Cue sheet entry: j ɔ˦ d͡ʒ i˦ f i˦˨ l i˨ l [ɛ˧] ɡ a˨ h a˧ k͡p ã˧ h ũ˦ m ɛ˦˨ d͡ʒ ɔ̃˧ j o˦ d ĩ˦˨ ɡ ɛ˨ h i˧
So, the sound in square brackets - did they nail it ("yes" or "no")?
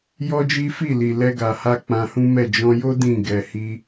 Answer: yes